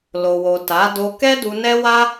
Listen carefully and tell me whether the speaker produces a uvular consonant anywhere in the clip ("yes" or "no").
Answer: no